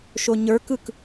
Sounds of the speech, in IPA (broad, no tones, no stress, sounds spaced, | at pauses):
ʃ o ɲ ə˞ k ɯ k